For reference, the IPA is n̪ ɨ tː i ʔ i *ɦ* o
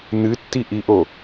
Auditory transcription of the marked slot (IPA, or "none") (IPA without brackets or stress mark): ʔ